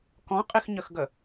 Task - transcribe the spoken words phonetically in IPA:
k ɔ̃ qʼ i x ɲ ə x ɡ ə

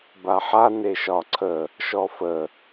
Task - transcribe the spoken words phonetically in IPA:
b a ħ a n e ʃ ɒ ǀʰ ə | ʃ ɔ f ə

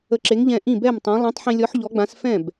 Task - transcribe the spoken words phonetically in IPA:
ə˧ ǁ e˨˥ ŋ ʎ ɛ̃˧ ʔ ĩ˥˩ b ɛ˥˩ m tˤ ã˨˥ lˠ ẽ˨˥ tˤ ħ ĩ˧ lʲ ɔ˨˥ ħ ʎ ɔ˨˥ ɡ͡b ã˨˥ s f ɛ̃˥˩ b

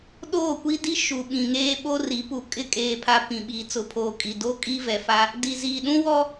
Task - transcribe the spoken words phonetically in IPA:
ɗ oː˦˨ kʷ i˦ d i˦ ʃ u˨ ɓ ĩ˨ ŋ eː˦ ɓ o˦ r i˨˦ p u˨ kʼ ɪ˦ kʼ eː˨ pʰ a˨ p ĩ˨ ɓ iː˨ t͡s ʊ˨˦ pʰ oː˨ kʼ i˨ d o˦ kʼ i˦ v ɛ˨ f a˦ | d i˨ z iː˨ ɗ ũ˦ w ɔ˦

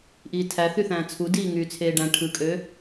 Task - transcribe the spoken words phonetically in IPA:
ʔ iː tʰ æ θ y θ æ̃ː t͡sʰ u d iː ŋ yː t͡sʰ eː ɖ æ̃ ʈʰ ɯ kʼ ø

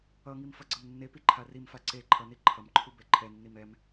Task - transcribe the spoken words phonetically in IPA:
ʌ ŋ i m f ʌ ɡ͡ǀ ʌ m nː e p i ǃʰ a r i m f a ǀ e ǃʰ ʌ n i ǃʰ ʌ m ǃʰ u b ɛ ǃʰ ɛ nː i m ɛ m

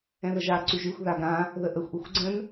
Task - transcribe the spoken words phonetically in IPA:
ɛ̃ ð ə ʒ a ǀ y ʒ y xʷ ð a ɡ ã | ð ə ʔ ə xʷ ʔ u xʷ ɡ͡ǀ ə̃ n

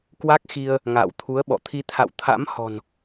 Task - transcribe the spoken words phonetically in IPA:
k w a˦˥ k̚ x i˧ ə̯ | ŋ a̰ː˧˨ w t̪ʰ u˨˦ ə̯ ɓ ɔ̰˧˨ t̪ʰ i˧ t̪ʰ a̰˧˨ w t̪ʰ a̰˧˥ m h ɔ̤˨˩ n

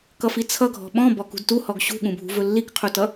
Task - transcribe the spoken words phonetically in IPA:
k ʌ f i t͡sʰ ʌ ɡʱ ɔ̤ ɓ ɔ̃ b ɔ k ṳ d t u h ɔ ɡ ɕ ṳ ɠ ũ bʱ ṳ v ɵ lː i k qʰ u t ʌ

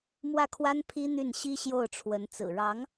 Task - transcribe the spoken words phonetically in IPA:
m w ä˥˩ kʰ w a˥ n pʰ i˥ n̪ y˥˩ n ɕ i˥ ɕ j o˥˩ ʊ̯ ʈ͡ʂʰ w ə˧˥ n t͡s ɹ̩˨˩ ɻ ɑ˧˥ ŋ

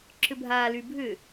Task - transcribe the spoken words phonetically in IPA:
ǁ ʏ bʱ aː l y bʱ ʏ

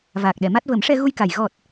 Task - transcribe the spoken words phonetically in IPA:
v aː˨˩ k̚ ɗ ɛ˨˩˨ m a˦˥ t̚ v ə˨˩˦ m ʂ ɛ˧ ɣ u˧ j k a˨˩ j ɣ ɔ˨˩ t̚

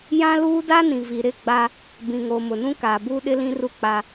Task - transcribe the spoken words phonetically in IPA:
j ã˦ l uː˦ d a˦ n ĩ˨ v i˨ ɾ ɪ˦˨ ɡ͡b a˦ | b ĩ˨ ŋ oː˨ m ʊ˨ n ũ˦ k aː˨ b uː˦ ɗ ɪ˦ l ĩ˦ r u˦ k͡p a˦

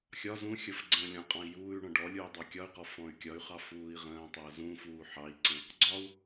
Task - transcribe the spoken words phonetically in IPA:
xʲ ɒ z ũ xʲ ʌ f ɡ͡ǀ ə̃ː lʲ ɔ̃ qʼ ɑ̃ i̯ j uː y̯ ɳ ɔ̃ ɖ ɔ lʲ uː i̯ dˤ ɑ kʲ ɒ y̯ q ɔ f ɔ̃ y̯ kʲ ɒ y̯ χ ɑ f uː i̯ ʁ ə̃ː tˤ əː z ũ f uː ħ ɑ i̯ ǀ ə̃ | ɡ͡ǀ ɒ u̯

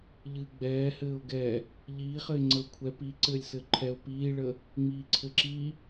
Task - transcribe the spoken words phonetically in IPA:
ʎ ɨː ɡ͡b ɛː h ɘː ʊ̯ ɡ ɛ | ʎ iː χ ɘ ɪ̯ ŋ͡ǀ ə ʊ̯ kʷʰ ɛ p i ǀ ɘː lʲ s ɘ ǃʰ ɛ ʊ̯ p iː ɭ ə | ŋ͡m iː ǀʰ ɘ ǁ i

